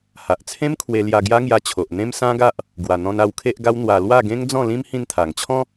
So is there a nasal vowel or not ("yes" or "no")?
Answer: yes